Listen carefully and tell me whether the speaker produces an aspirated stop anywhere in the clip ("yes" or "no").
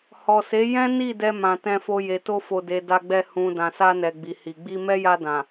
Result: no